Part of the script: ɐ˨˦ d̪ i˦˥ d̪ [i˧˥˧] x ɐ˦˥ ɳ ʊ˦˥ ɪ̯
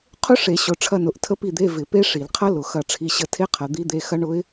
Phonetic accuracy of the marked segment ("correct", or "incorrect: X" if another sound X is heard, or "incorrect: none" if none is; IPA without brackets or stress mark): incorrect: e˧˥˧